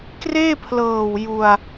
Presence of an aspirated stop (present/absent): present